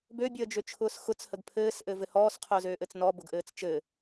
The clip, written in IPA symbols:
bøbʲəːd͡ʒøt͡ʃʰʊːs xʊt͡shəɡ pʰɘːsʔɘvɘ hɔːsqʰʊːzøːʔɘt͡s nɔbʊɡʔɘːt͡s t͡ʃɘ

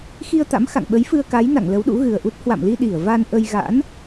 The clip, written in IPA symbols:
xi˧ə̯t̪a̰˧˥m xa̰˧˨ŋɓə˨˦jfɨ˧ə̯ ka˨˦jna̰˧˨ŋ lə˨˦wɗṵ˧˥ɣɨ˨˩ə̯ʔu˦˥t̚ hwa̰˧˨mli˧ ɗi˧˩ə̯va˧nʔə˧j ɣa̰˧˥n

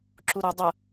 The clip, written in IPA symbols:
ǁuɾɵ dˤə

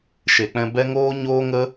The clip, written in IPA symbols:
ʃe˨k͡pɛ̃˧ bɛ˦ŋoː˦ ɲoː˦ŋə˦

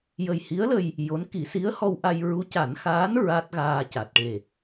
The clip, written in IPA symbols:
jə˨˩jhi˧˥ə̯lə˧j | jo˧˥n ki˨˩˦si˧˥ə̯ hɔ˧wʔa˧j ɹu˧˥ca˨˩˦nxaː˧˥n ɹa˦˥t̚ɣaː˧ ca˨˩t̚ʈe˨˩

